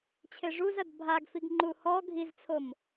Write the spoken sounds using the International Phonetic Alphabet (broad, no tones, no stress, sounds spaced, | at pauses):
t͡ɕʰ e ʐ u z ɐ d bʱ a ɡ f i ɡ ŋ͡ǃ u h ɔ ɡʱ i z t͡sʰ o m